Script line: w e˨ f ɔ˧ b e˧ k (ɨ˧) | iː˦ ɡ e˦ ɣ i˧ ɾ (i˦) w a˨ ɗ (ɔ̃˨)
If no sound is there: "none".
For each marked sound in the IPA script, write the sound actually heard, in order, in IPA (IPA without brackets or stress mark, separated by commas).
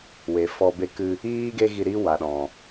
ɨ˧, i˦, ɔ̃˨